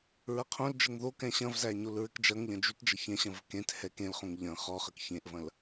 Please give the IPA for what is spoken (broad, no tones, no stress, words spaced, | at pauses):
ɹɐqʰõld͡ʒəŋ ðokɛ̃ ɕɐ̃vzæ ɲolɹɘkd͡ʒɐŋʎɐ̃ d͡ʒytd͡ʒɐ çɛ̃ɕɐ̃v kẽt hɛkẽlχõŋ ʎɐ̃ χɔχək çẽʔvɐ̃l